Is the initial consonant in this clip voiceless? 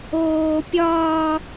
yes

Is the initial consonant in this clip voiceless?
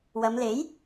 no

